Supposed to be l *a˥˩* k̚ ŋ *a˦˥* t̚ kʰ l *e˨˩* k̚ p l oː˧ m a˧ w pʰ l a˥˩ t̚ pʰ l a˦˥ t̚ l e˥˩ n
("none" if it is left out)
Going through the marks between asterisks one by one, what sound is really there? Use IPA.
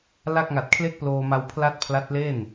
a˥˩, a˨˩, e˥˩

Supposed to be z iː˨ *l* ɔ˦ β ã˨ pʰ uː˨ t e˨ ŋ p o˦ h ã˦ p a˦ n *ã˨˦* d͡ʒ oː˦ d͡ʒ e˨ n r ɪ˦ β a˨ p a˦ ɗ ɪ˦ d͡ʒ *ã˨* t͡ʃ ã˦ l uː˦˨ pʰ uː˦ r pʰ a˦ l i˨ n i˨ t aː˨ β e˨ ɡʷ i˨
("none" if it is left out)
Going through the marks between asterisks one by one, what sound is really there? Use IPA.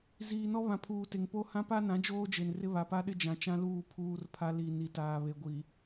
n, ã˨˦, ã˨

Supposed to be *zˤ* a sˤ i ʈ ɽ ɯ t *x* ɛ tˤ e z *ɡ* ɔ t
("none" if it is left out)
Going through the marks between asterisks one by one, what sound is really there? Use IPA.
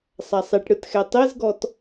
sˤ, x, ɡ

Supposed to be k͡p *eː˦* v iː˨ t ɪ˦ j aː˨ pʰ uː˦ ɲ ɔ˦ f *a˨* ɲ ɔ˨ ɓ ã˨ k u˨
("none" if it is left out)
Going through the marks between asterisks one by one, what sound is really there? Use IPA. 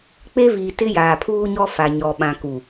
e˦, a˨

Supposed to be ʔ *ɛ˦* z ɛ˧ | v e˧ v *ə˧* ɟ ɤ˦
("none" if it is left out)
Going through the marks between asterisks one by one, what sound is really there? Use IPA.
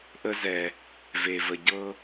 ə˦, ə˧

